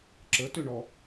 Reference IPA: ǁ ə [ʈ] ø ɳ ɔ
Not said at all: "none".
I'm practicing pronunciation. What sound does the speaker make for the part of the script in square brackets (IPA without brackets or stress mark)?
t